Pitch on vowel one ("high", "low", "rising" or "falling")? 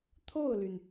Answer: falling